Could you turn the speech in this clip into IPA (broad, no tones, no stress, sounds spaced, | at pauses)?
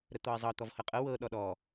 ɾ ə t̪ ɔ ɪ̯ zˤ ɤ t̪ ɔ v h ɤ qʼ ɤ w ɤ ɗ ɔ ɗ ɔ